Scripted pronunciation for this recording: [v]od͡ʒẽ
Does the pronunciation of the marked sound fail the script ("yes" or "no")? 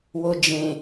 yes